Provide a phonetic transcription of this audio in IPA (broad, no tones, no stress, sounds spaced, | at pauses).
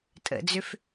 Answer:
tʼ ə̰ d͡z ʏ f